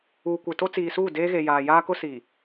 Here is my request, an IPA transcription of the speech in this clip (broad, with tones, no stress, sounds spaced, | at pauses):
uː˨ kʷ e˨ t o˦ t͡s iː˨ s uː˦˨ d eː˦ ɣ e˨ j aː˨ j aː˦ k ʊ˦ s i˨